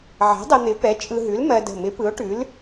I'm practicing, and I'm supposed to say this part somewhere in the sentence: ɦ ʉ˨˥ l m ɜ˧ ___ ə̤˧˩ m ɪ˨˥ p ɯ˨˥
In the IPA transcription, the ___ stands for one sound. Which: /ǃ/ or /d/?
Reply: d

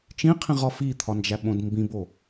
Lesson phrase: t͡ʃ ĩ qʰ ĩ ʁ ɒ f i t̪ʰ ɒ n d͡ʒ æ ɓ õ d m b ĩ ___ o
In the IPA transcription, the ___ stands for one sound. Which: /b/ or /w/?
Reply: b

